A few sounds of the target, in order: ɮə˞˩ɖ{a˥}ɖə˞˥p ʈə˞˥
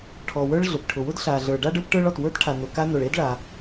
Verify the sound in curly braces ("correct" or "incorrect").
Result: correct